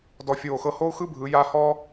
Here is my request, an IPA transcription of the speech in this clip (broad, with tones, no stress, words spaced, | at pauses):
dɔ˧˩fʲoː˧˩xɤ˧ ho˥u̯xɯ˥bʱɯ˩˧ ja˥˧ hɔː˥